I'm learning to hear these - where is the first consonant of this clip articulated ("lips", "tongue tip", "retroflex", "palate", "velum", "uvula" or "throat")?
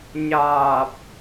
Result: palate